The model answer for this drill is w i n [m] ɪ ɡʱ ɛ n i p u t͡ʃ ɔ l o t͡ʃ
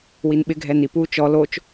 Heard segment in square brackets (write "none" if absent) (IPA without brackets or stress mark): ɓ